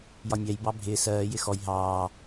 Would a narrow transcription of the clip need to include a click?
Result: no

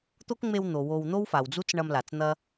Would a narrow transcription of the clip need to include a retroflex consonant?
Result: yes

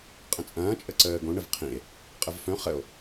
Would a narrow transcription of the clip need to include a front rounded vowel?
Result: yes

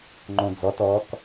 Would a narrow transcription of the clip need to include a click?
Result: yes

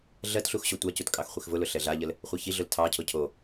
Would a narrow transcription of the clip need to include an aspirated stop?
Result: yes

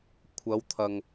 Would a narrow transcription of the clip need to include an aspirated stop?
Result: yes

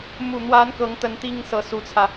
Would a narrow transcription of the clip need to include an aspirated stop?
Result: yes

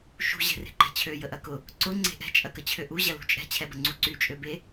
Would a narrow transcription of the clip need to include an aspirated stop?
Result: yes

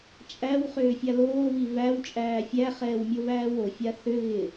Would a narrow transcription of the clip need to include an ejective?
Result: yes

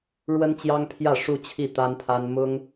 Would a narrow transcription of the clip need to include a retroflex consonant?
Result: yes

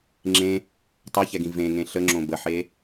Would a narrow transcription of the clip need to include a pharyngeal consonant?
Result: yes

